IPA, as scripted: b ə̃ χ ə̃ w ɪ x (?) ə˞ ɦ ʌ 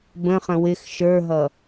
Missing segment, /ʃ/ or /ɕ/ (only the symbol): ʃ